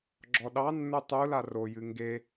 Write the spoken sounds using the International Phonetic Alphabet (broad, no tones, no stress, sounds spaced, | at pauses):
ɡ͡ǁ ɔ ɗ ɑ nː u tˤ u l a r o j ɨ ŋ ɡ e